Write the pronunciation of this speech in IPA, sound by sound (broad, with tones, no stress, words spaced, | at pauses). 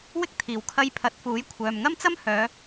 wɪ˥k̚t̪ʰiː˨˩wkʰɐ˧j pʰɐ˨˥t̚fuː˨˥j kʷʰœː˨mŋɐ˥mt͡sɐ˥m hœː˨˧